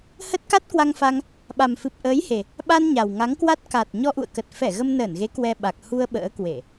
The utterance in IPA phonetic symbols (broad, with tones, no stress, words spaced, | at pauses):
hə˦˥t̚ka˦˥t̚kwa˧ŋfa˧ŋ | ɓa˨˩mfɨ˨˩p̚ʔəː˨˦jhe˨˩ | ɓa˧n ɲa˨˩wŋa˨˦ŋkwa˦˥t̚ ka˨˩t̚ ɲɔ˧ʔṵ˧˨ə̯kə˨˩t̚ fɛ˧˩ ɣə˧mnəː˧˩nɣe˨˦ kwɛ˧ɓa˨˩k̚ hu˧ə̯ ɓə̰ː˧˥kwe˧˩˨